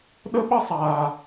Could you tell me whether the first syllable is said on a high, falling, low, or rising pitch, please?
high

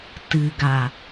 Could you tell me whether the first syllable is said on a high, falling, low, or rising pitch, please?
low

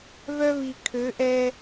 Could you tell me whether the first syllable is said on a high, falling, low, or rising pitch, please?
high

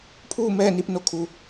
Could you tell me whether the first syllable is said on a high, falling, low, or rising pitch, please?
falling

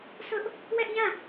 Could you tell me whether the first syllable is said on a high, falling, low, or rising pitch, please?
high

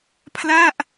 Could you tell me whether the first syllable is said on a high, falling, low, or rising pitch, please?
falling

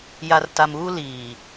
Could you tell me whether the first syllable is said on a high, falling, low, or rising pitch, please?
low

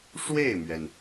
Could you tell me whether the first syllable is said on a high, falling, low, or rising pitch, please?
falling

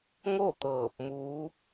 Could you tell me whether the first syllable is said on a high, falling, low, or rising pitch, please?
falling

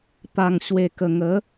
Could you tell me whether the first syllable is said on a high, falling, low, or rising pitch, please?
low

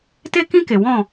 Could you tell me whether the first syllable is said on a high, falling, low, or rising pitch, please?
high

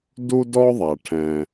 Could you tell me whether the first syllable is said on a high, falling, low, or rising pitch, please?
high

